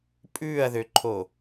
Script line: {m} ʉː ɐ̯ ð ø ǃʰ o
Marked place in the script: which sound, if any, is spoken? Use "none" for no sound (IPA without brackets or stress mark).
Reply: pʼ